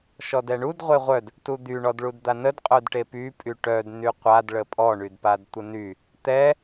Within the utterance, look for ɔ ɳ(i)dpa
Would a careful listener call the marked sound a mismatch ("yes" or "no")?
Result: yes